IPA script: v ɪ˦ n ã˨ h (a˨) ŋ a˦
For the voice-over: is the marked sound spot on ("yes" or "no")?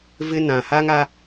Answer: no